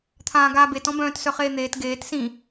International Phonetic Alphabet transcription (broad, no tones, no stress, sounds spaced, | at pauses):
t̪ʰ ãː ɡ aː b e t ɔ̃ b œ̃ː t s œ χ eː n̪ eː t ɡ eː t s ĩ